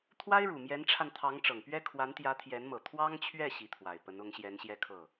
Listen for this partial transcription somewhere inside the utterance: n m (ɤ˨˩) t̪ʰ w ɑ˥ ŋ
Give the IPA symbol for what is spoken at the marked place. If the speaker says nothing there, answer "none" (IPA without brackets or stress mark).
ɤ˨˩